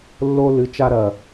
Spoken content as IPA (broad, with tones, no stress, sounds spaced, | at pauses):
lː o˦ l ɨ˨˦ t͡ʃ a˦ ɾ ɐ˩